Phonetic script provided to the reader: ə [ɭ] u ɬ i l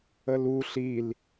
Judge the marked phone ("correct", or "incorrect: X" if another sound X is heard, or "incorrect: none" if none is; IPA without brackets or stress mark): incorrect: l